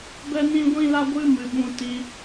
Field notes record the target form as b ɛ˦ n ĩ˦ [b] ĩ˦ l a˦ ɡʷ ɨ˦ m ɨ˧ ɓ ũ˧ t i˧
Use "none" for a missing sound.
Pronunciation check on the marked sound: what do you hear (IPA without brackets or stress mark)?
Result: ɡʷ